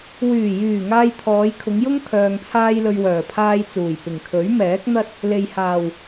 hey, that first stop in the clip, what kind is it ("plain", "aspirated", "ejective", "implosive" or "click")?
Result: aspirated